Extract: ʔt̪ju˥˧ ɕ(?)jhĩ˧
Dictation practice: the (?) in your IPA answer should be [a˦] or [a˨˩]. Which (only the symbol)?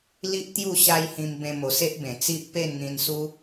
a˦